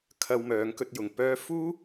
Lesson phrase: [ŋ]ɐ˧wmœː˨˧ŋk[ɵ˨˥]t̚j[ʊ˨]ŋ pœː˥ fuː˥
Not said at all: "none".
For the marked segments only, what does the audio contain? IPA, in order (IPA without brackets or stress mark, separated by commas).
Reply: kʰ, ɵ˧, ʊ˨